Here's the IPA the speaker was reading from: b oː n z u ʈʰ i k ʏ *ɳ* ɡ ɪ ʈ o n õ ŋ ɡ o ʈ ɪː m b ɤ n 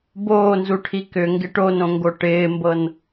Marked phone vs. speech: incorrect: ŋ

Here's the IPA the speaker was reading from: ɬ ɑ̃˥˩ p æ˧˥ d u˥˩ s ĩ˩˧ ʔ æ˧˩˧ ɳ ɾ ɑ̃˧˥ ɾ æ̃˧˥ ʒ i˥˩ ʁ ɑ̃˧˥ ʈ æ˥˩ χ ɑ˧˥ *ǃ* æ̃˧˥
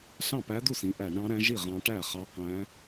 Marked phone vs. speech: incorrect: q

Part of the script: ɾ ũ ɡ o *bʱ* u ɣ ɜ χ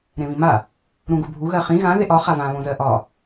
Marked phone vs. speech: correct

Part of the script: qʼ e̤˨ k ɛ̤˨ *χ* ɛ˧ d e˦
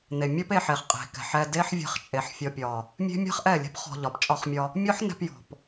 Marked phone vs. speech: incorrect: ħ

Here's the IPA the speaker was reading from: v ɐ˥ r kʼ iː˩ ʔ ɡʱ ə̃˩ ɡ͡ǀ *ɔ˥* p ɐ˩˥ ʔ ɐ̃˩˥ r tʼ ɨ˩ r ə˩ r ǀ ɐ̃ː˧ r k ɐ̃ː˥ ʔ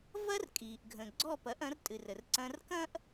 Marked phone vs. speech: incorrect: ɔ˥˩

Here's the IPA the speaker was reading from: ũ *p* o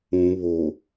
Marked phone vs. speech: incorrect: β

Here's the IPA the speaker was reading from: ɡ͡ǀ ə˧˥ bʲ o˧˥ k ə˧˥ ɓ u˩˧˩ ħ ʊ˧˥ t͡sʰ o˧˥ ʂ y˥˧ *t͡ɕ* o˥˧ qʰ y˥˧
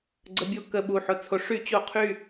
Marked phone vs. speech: correct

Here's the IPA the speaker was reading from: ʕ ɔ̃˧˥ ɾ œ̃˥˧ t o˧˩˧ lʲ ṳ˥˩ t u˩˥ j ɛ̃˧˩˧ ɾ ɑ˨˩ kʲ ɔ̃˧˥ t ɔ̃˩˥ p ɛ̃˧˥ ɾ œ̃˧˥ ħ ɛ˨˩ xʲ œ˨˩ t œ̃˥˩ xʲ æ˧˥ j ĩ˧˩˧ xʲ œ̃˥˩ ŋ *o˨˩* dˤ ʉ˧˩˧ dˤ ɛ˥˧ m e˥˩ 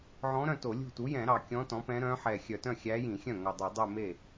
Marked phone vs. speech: correct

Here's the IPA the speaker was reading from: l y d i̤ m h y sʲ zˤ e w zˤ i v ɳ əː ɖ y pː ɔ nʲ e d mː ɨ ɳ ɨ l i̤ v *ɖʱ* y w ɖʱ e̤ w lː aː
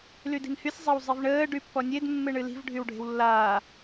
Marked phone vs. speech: correct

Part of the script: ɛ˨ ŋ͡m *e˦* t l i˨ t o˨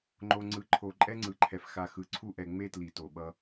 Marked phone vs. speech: correct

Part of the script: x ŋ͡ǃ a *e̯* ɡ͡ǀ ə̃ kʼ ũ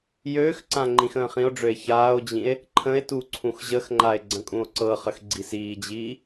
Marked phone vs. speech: correct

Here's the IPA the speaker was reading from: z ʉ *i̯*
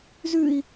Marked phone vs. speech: correct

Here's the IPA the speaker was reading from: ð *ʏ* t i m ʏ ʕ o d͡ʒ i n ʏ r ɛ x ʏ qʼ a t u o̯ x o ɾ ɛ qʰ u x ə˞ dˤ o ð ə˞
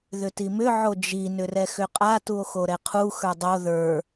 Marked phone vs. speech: correct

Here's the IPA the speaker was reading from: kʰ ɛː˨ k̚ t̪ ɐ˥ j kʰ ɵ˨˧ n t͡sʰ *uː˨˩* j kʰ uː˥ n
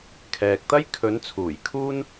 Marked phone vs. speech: correct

